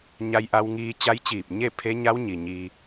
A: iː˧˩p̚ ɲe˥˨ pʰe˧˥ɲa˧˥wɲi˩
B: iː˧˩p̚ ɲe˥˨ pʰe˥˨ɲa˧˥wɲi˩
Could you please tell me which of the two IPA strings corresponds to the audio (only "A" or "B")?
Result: A